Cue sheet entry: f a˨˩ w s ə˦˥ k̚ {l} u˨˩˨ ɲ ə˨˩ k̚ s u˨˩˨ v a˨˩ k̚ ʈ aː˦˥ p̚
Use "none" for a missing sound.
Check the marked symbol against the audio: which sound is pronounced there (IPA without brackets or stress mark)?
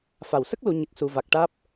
l